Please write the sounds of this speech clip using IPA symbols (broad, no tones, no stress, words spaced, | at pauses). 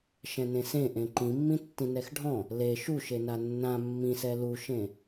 ʃɛ̃nẽsẽ ʔẽǃĩmːĩ tːĩnɛxɖʱɔ̃ | le ʃuʃena nːã mːĩsɛ luʃẽ